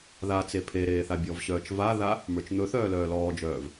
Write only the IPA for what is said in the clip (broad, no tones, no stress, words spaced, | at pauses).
ðat͡se pʰeɾeːθ abʲɔvɕœːt͡ʃ vaða | mə˞t͡ʃn̪ɵθœː lœːlɔːd͡ʒœːv